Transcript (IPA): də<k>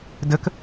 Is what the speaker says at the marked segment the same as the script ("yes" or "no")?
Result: yes